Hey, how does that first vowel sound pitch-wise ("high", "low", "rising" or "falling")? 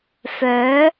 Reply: rising